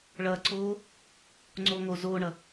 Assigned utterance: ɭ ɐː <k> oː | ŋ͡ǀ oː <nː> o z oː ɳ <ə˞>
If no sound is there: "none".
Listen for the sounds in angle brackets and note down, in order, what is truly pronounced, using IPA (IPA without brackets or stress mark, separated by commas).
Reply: ǀ, ŋ, ɐ